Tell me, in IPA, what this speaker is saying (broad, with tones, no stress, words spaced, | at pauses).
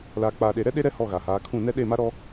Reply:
laː˨k͡paː˨ɗe˨ɾɛ˦ ɗe˦ɾɛ˦ hɔ˦˨ɣa˨haː˨˦kʰũ˦˨ nɛ˦ɗe˦˨ma˦ɾɔ˦